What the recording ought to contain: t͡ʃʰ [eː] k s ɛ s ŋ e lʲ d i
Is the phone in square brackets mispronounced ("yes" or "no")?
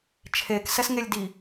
no